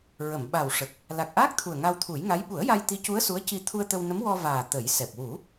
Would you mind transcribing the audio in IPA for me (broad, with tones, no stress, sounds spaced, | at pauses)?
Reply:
ɹ ə˨˩˨ m ɓ a˨˩ w ʂ ə˨˩ k̚ | l a˨˩ k̚ ʔ aː˦˥ k̚ t̪ʰ u˨˩ ə̯ ŋ a˧ w t̪ʰ u˨˩˦ j ŋ a˧˥ j ɓ u˨˩˦ ə̯ j a˧ j t̪ i˧˥ c u˧˥ ə̯ s u˧˥ ə̯ c i˧ t̪ʰ u˧ ə̯ t̪ ə˧ w n ə˧˥ m w ɔ˧ v aː˨˩ t̪ ə˨˩˦ j s ɛ˨˩ p̚ w u˨˩˦